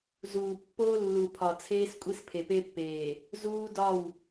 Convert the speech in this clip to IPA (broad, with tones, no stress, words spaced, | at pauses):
zuː˨pːoː˦lːu˨ pʰɒ˨t͡sʰeː˦skʷʼi˦s pʰe˨pe˦pːeː˨ | zuː˦dɒ˦˨w